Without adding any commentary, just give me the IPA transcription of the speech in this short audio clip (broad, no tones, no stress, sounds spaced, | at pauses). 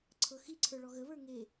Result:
ǀʰ ɤ x i ǀʰ ə˞ ɭ ɔ ɣ ə β ə˞ ŋ e